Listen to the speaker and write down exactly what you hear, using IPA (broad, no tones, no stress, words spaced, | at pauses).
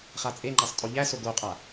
χat͡sʼeŋ͡ǃasˤ tʼoʎæso ɡoqʼa